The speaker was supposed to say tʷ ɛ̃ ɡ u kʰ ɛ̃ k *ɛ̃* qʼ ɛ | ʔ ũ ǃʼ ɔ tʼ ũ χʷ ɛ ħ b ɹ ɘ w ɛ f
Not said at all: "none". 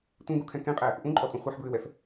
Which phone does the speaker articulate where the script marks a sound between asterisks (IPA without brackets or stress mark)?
ẽ